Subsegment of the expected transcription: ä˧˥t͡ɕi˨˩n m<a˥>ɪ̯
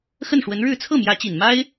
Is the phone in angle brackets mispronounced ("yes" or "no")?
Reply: no